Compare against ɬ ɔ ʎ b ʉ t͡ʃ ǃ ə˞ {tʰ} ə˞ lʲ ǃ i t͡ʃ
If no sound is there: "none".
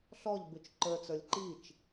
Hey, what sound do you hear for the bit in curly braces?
t͡s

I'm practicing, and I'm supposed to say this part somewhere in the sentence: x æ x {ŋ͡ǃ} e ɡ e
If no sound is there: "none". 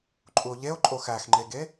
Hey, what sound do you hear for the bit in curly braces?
ŋ͡ǃ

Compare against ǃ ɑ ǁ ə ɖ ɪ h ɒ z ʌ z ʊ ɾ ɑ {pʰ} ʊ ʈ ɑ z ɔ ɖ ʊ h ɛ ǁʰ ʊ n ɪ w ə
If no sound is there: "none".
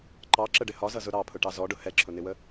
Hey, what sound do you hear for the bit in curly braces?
pʰ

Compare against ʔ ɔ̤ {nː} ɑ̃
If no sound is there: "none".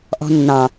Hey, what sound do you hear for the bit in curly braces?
nː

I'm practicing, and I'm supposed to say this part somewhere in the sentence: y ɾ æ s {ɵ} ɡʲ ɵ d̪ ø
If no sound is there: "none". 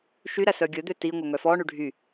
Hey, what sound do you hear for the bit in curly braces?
œ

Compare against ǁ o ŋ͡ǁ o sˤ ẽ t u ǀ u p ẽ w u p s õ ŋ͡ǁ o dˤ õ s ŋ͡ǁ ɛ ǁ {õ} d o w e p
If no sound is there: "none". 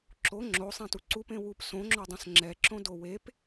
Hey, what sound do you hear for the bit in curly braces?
õ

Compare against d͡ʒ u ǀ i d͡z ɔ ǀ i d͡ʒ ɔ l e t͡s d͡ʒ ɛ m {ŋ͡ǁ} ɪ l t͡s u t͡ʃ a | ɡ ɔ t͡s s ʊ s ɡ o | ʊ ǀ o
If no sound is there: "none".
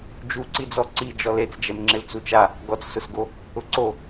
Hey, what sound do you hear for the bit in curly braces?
ŋ͡ǁ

